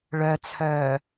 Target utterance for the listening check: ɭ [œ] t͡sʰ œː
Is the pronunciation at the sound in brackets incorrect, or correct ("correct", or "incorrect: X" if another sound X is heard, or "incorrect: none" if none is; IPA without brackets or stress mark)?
correct